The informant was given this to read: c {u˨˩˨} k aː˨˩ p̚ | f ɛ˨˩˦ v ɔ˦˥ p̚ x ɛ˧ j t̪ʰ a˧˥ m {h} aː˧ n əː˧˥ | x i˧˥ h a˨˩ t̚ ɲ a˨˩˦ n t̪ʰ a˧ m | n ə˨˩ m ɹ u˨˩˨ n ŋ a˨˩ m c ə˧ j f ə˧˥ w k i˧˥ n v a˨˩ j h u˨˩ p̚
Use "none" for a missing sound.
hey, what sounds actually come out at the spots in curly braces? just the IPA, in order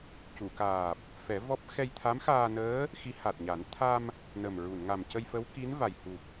u˨˩˨, x

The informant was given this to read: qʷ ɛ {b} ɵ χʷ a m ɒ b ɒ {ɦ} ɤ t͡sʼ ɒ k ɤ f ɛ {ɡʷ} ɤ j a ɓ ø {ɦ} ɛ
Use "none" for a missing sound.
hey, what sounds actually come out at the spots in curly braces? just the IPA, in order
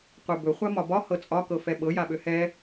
b, h, ɓ, h

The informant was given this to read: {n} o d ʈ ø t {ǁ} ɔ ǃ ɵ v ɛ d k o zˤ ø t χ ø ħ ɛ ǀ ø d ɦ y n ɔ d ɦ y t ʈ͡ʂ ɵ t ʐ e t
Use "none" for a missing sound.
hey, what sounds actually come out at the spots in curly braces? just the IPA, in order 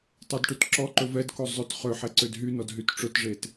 tˤ, ǁ

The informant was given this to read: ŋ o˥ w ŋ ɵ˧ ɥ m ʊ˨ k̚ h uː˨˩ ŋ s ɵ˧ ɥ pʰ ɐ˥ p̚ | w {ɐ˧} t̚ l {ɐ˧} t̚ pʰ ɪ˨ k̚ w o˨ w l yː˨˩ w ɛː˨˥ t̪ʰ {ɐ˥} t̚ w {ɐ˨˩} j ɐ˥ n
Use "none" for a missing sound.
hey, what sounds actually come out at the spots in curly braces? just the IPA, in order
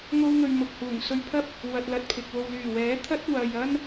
ɐ˧, ɐ˧, ɐ˥, ɐ˨

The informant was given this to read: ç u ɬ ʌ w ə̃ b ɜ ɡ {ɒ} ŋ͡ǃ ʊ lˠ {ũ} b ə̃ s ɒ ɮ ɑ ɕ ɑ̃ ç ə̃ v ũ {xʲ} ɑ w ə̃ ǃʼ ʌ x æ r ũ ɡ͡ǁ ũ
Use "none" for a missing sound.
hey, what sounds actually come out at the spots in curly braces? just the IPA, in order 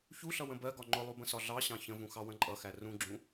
ɒ, u, x

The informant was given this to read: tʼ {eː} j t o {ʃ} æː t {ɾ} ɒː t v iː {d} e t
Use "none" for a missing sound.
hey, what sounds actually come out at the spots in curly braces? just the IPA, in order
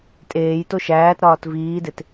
eː, ʃ, ɾ, d

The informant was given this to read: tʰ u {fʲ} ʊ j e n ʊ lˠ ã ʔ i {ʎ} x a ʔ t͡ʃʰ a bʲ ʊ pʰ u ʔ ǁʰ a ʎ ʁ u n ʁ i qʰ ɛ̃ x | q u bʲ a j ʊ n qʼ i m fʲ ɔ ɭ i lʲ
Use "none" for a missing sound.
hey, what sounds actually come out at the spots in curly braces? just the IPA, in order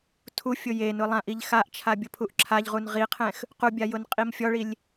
fʲ, ʎ

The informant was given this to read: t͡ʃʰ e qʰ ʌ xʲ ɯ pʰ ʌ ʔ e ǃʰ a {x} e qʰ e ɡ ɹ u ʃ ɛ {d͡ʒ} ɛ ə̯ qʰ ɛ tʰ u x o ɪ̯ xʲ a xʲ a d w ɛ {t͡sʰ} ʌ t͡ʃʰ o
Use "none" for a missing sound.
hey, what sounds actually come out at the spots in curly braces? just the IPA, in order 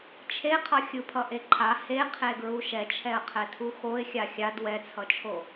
h, t͡ʃʰ, t͡sʰ

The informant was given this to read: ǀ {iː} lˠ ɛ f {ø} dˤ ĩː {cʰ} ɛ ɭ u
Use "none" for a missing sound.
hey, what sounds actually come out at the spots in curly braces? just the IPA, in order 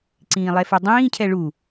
ĩː, ɛ, cʰ

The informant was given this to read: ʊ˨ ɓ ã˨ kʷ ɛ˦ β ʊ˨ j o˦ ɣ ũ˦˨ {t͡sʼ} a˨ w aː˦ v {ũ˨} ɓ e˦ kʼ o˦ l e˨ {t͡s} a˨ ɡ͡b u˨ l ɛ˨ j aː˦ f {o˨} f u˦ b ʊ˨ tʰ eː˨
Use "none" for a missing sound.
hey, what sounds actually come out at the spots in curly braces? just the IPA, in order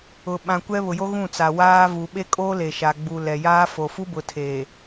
t͡s, u˨, ʃ, o˨

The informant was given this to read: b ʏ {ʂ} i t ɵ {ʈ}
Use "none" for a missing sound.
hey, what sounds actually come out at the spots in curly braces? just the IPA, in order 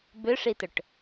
ʂ, ʈ

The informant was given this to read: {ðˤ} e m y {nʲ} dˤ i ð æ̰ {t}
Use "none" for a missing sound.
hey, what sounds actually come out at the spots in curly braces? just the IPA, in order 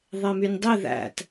ðˤ, nʲ, t

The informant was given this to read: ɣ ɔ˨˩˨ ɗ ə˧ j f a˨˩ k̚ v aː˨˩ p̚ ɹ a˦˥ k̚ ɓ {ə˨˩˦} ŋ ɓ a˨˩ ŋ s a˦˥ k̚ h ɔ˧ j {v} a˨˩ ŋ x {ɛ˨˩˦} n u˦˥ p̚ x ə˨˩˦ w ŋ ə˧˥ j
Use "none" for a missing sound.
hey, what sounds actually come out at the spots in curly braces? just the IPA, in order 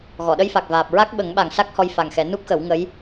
ə˨˩˦, f, ɛ˨˩˦

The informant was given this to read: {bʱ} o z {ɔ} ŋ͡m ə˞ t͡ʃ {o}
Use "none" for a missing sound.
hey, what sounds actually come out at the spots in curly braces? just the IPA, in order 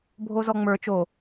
bʱ, ɔ, o

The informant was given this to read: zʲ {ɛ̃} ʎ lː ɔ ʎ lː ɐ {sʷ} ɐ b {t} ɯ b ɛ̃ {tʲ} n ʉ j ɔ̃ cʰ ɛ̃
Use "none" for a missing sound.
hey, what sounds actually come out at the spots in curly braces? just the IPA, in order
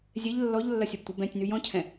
ɛ, sʲ, tʷ, tʲ

